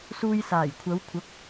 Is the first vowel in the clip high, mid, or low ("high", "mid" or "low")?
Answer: high